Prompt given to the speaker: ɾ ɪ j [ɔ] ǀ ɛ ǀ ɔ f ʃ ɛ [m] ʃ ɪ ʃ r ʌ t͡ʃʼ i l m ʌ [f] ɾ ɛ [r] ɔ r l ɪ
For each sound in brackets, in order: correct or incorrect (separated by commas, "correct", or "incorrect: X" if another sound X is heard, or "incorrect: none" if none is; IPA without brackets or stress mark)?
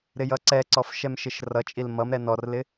incorrect: ʌ, correct, incorrect: m, incorrect: n